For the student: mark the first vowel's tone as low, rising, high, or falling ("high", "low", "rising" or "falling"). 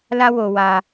high